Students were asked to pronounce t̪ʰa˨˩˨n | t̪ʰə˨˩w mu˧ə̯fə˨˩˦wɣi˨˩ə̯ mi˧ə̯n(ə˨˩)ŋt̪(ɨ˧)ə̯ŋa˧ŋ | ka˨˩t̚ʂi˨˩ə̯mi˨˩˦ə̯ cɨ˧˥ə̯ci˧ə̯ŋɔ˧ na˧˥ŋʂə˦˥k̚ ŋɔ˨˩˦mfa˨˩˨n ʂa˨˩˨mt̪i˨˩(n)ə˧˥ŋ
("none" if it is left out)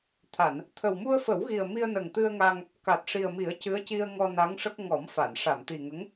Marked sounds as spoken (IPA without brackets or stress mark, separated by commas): ə˨˩, ɨ˧, ŋ